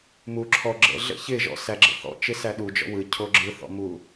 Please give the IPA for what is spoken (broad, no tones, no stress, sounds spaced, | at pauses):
m u ǁʰ ɔ ɡ͡ǁ ə̰ ɮ ə̰ ç ɪ ʒ ɔ̰ s æ ɡ͡ǁ ə̰ θ ɔ̰ t͡ʃ ɪ s æ ɗ u d͡ʒ ɔ̰ w ɯ cʰ o ɡ͡ǁ ɯ θ ɔ̰ m u